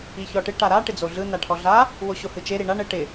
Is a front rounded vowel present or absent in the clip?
absent